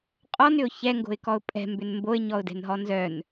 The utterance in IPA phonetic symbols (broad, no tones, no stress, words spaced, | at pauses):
qʼɔnʏʊ̯ çɛŋɡo̤ɪ̯kɔʊ̯ pʼɛ̤mbʏn mboɪ̯ɲɔʊ̯dɛ̤nɦɔ nzœn